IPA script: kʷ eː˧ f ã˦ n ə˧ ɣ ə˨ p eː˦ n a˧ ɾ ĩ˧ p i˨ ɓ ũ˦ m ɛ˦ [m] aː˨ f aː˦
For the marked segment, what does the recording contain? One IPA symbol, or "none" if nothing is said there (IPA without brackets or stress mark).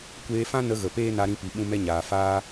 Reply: ɲ